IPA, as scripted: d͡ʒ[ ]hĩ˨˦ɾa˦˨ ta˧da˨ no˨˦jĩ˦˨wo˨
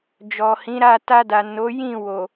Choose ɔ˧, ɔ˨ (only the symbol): ɔ˨